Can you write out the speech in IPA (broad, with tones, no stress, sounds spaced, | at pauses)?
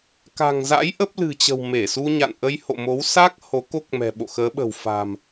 k a̤˨˩ ŋ z a̰˧˥ j ʔ ə˦˥ p̚ l ɨ̤˨˩ t͡ɕ ə̤˨˩ w m e˧˩ s u˧ ɲ a̰˧˨ n ʔ ə˧ j h o̰˧˨ m o˨˦ w s a˦˥ k̚ h o˨˦ k o˦˥ k̚ m ɛ̤˨˩ ɓ o̰˧˨ x əː˨˦ ɓ ə̤˨˩ w f a̤˨˩ m